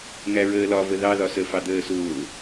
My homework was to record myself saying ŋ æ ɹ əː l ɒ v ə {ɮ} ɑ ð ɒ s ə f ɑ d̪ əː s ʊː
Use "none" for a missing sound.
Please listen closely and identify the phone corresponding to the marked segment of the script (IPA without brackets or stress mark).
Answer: ð